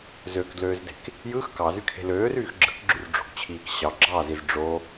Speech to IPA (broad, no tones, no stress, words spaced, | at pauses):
zøkdløːzde̤k | jɯx kɑzykʰe̤ løːryːx ɡ͡ǁɯkɡ͡ǁyrɖ͡ʐo̤kt͡ɕʰiːk ɕɑ ɡ͡ǁɑziz ɖ͡ʐo